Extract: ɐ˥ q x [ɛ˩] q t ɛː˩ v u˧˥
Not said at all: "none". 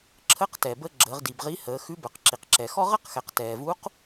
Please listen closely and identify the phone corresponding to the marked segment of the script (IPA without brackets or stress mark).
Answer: ɛ˩˧